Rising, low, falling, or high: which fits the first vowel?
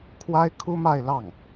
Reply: high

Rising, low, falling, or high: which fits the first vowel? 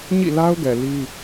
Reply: falling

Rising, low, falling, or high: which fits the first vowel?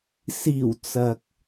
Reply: low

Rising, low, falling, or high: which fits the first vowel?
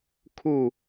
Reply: falling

